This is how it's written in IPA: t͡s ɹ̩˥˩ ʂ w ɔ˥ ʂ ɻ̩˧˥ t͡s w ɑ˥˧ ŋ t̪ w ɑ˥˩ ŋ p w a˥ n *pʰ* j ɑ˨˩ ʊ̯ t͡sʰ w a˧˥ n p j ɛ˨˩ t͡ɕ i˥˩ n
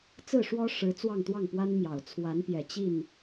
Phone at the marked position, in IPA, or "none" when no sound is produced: m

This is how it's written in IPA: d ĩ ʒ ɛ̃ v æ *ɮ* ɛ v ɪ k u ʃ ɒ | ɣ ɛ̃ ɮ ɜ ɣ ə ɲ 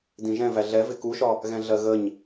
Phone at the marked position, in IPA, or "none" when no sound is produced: ɮ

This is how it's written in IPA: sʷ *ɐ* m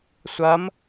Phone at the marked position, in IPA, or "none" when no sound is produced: ɐ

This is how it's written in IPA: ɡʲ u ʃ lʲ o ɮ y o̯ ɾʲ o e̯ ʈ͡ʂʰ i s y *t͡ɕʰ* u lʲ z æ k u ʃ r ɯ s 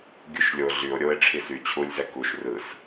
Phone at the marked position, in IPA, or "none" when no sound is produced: t͡ɕʰ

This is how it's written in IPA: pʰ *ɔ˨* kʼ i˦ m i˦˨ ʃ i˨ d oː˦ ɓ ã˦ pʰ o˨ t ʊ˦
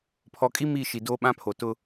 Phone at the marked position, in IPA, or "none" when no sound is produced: ɔ˨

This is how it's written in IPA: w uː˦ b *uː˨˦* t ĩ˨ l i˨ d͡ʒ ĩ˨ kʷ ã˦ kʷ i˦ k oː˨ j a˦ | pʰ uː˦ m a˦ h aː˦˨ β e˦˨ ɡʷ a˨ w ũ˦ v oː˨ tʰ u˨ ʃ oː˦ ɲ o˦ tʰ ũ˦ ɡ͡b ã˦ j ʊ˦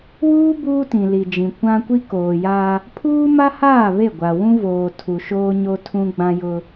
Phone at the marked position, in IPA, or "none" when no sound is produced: uː˦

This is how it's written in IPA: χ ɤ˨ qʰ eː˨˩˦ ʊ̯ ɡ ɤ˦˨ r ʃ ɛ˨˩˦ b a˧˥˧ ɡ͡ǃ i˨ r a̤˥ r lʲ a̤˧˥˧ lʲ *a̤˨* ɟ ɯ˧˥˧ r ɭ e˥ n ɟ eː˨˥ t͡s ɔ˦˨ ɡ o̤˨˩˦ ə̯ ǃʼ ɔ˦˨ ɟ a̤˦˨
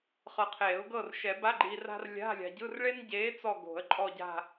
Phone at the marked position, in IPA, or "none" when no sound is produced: a̤˨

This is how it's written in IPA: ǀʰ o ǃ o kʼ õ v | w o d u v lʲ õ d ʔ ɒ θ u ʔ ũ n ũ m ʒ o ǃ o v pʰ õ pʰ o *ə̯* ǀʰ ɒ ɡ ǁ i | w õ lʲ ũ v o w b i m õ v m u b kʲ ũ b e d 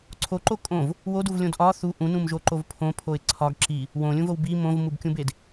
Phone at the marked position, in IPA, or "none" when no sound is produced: ɪ̯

